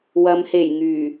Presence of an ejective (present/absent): absent